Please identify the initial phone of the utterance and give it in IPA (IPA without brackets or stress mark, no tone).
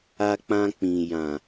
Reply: a